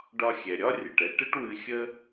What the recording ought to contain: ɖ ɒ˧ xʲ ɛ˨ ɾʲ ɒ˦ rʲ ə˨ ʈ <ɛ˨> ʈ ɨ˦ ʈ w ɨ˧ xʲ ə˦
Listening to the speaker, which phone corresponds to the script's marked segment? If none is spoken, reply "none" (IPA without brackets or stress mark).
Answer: ɛ˦